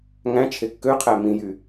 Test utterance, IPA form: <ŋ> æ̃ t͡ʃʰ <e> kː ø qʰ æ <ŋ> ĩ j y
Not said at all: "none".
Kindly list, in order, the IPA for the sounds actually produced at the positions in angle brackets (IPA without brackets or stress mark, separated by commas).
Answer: ŋ, e, m